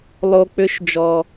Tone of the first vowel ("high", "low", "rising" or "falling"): low